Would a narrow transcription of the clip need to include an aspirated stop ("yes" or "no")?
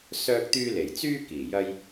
no